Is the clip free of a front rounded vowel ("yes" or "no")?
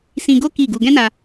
yes